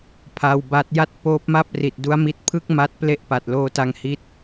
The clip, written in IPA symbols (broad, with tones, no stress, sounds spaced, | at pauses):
pʰ a˧ w b a˦˥ t̚ j a˥˩ t̚ p oː˦˥ p̚ m a˥˩ p̚ r i˨˩ t̚ d u˦˥ a̯ m i˦˥ t̚ pʰ ɯ˥˩ k̚ m a˦˥ t̚ p l e˦˥ ʔ p a˨˩ t̚ l oː˧ t a˧ ŋ h i˦˥ t̚